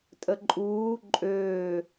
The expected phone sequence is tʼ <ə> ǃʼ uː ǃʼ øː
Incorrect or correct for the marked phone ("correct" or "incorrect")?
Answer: correct